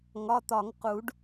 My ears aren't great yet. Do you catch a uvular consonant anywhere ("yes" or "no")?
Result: yes